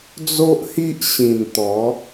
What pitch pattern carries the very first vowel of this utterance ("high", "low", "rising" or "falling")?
high